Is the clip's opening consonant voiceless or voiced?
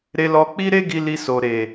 voiced